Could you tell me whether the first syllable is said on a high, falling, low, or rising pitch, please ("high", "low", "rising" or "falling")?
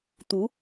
rising